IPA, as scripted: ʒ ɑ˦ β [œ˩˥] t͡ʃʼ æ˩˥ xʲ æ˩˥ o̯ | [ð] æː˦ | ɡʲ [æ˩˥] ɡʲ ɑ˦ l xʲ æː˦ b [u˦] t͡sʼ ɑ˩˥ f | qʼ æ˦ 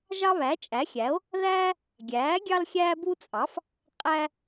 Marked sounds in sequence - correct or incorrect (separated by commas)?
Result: incorrect, correct, incorrect, correct